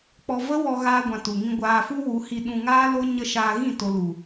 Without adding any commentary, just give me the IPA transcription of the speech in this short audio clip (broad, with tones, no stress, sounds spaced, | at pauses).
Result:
k͡p ɔ˧ v ə˦ w ɔ˧ ɣ aː˦ ɡʷ ã˧ t u˨ ŋ ĩ˧ ɡʷ aː˧ f u˦ w u˨˦ h i˧ ɗ ũ˧ ŋ aː˦ l o˦ ɲ ə˦ ʃ aː˧ ɣ ĩ˦˨ t o˧ l u˨